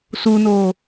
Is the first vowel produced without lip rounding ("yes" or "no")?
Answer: no